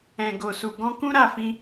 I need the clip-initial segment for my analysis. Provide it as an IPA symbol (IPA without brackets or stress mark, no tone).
ɛ̃